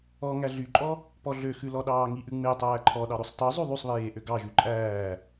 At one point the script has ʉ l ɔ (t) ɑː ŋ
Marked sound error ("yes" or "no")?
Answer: yes